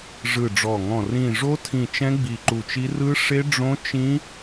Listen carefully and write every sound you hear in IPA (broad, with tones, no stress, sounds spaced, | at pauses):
ʐ ɯ˧˩ ɖ͡ʐ ɔ˧˩ ŋ ɔ̃˧˩ r ĩ˧˩ ʐ o˦˥ tʰ ĩ˧˩ t͡ʃ ɛ̃˦˥ ɡ͡b i˧˩ ǃ u˧˩ t͡ʃ i˦˥ r ɯ˦˥ ʂ e˦˥ ɖ͡ʐ õ˦˥ t͡ʃ ĩ˦˥